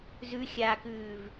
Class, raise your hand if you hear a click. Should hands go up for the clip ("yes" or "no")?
no